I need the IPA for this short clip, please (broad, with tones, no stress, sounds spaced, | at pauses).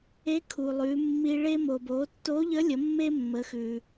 e˧˥ kʰ u˩ lˠ ʉ˩˧ mː i˧ ɭ e˧ m o˩ b o˩˧ tː o˧˥ ʎ ə˧˥ lʲ ə˩˧ mː e˥ mː ə˩˧ x ʉ˩